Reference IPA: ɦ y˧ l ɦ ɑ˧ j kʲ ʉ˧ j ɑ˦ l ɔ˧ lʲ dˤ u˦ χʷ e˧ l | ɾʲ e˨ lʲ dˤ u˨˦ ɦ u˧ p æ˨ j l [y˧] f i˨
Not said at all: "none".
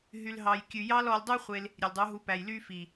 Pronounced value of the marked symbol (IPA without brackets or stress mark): y˦